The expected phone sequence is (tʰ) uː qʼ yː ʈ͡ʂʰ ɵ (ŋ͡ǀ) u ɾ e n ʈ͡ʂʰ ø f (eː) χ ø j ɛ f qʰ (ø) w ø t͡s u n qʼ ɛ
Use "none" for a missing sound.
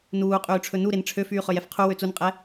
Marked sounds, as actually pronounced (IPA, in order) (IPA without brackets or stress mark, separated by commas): n, n, yː, u